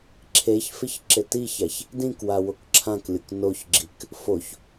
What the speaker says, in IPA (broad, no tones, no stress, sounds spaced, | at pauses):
ǁʰ e ç f ɪ ç ǁ ɪ t i ç a ç | d ĩ k w a w o k ǁʰ ã k lʲ ʊ k n o ç ɡ͡ǁ i k | f o ç